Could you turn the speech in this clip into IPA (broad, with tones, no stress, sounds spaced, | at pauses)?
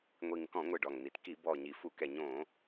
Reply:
ŋʷ i˨˩ ŋ k ɔ̃˧˩˧ ŋʷ ɨ˨˩ ɖ ɔ˨˩ ŋ n̪ i˨˩ t k i˧˩˧ b ɔ˨˩ ɲ i˨˩ f u˧˩˧ k ɛ˨˩ ɲ õ˧˩˧